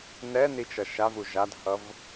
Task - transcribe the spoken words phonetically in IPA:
n ɛ n i t͡ʃ ʌ ʃ a v u ʒ a d h ʌ v

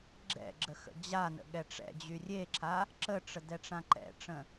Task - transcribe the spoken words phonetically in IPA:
ɡ͡ǁ ɛ̰ ɡ͡ǁ ə x ə̰ d͡ʑ a n ə̰ ɠ ɛ ʈ͡ʂ ɛ̰ d͡ʑ y rʲ e ǁʰ a | ǁ ə ʈ͡ʂ ə d ɛ ʈ͡ʂ ã ǃ ɛ̰ ʈ͡ʂ ə̃

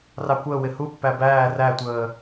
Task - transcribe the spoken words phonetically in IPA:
r ɑ kʷ əː w ɪ h u pː æ b æː r æ tʷ əː

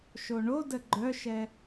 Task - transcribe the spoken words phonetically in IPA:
ʃ o ɳ o d ə ɡ͡ǃ œ ʃ ɛ

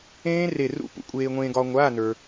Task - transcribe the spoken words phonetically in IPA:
ẽː˦˥ r e˧˩ r ṵ˧˥˧ p ṵ˩˥ kʷʼ eː˧ ŋʷ ẽː˧ ɡ ɒ˧ ŋʷ aː˧˥˧ n ə˞˧

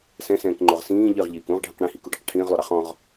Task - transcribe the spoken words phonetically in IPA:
s ɛ̃ s ɛ̃ː k ŋ͡ǃ o ʁ s ĩː ʎ ɨ ʁ ʎ iː k ũ ʁ ɖʱ ĩ q ɽ ĩ h i k u ɖ ɛ q ʈʰ ĩː ʁ lˠ o ɾ ɑ χ ɔ̃ ʁ

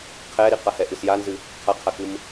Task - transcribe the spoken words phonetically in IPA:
qʰ ɛ ɾ i q a h ɛ ʔ ɨ s j a n z ɨ | qʰ a qʰ a k ɨ m

